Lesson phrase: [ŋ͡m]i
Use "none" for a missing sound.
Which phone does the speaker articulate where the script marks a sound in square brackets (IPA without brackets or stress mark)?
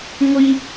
ŋʷ